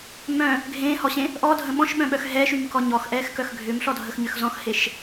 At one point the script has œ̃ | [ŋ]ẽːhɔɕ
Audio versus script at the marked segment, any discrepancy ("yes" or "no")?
yes